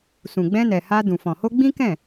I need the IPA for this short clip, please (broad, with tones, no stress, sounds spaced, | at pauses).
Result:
s ũ˨ ɡ͡b ɛ̃˧ n ɛ˨ h a˧ d ũ˨ f ɔ̃˨ h o˧ ɡ͡b ĩ˦ k ɛ̃˦˨